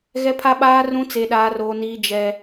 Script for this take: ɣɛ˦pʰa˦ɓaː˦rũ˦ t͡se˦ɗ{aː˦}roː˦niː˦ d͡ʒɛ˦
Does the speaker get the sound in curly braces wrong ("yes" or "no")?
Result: no